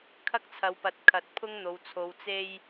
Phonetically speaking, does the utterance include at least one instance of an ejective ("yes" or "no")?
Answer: no